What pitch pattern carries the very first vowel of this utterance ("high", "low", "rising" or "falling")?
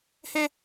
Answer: high